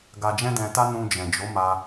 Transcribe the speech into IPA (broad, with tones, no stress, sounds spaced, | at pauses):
ɡ a˧ d͡ʒ ɛ̃˦ d ɛ̃˧ t a˦ n ũ˧ d͡ʒ ɛ̃˨ d͡ʒ o˨˦ m a˧